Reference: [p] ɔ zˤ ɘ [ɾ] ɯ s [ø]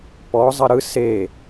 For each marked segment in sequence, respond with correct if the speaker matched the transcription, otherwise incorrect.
correct, correct, incorrect

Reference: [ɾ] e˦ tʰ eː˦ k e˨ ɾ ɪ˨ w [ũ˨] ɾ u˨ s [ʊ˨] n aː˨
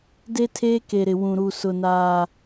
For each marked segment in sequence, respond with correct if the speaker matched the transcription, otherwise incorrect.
incorrect, correct, correct

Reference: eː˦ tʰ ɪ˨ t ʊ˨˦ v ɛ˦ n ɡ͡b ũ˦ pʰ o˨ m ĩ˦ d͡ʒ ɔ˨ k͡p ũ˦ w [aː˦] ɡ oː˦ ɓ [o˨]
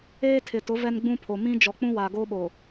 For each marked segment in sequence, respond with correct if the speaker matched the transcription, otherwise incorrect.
incorrect, correct

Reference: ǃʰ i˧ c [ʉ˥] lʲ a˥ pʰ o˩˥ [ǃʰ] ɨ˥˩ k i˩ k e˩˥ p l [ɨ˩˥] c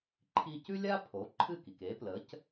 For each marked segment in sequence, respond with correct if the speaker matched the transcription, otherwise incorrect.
correct, correct, incorrect

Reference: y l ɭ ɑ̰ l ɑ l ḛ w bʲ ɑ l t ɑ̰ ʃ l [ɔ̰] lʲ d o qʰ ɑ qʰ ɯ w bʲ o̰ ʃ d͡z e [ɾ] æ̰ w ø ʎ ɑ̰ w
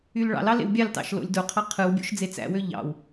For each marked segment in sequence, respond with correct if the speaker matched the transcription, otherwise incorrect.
incorrect, incorrect

